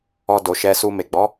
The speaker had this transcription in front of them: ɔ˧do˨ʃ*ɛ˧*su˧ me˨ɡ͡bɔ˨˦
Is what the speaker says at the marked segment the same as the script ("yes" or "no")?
yes